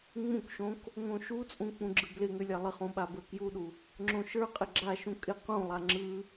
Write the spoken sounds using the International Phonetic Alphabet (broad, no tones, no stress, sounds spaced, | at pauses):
ŋ͡m ũ k ʃ õ k | ŋ õ ʃ u t͡sʼ ũ k͡p ũ ɡ͡ǁ ɯ b l ɪ ŋ ʏ lʲ a lˠ ɪ χ ũ ɓ a b ə˞ k j u ɗ u | ŋ͡ǁ õ ʃ ə˞ qʼ ɪ ɡ͡ǁ a ʃ ũ kʼ ɪ q ũ lˠ a ŋ͡ǁ ɯ